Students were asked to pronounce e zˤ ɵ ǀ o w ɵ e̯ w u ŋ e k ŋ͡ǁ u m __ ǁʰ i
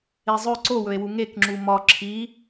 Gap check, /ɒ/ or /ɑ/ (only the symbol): ɒ